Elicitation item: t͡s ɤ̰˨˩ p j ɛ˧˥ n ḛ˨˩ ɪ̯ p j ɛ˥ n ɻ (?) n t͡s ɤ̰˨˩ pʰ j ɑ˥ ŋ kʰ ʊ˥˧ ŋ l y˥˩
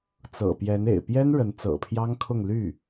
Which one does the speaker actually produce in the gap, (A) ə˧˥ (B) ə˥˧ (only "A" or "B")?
A